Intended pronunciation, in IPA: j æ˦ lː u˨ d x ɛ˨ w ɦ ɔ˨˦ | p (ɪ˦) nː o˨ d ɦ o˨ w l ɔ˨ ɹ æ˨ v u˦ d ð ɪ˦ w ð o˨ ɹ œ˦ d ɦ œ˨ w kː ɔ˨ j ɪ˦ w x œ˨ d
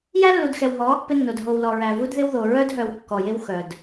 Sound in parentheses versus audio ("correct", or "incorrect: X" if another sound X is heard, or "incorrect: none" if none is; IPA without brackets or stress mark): correct